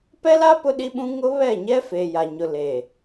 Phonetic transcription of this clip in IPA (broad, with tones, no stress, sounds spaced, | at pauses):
p ɛ˦ l a˦ p ʊ˦ ɗ i˦ ɓ ũ˦ ŋ ʊ˦ β ɛ˦˨ ɲ ɛ˦ f eː˨ j a˨ ɲ ʊ˨ l eː˨